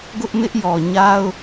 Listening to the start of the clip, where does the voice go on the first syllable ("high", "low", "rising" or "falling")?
high